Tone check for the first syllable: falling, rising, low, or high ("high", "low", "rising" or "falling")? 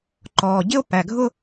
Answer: low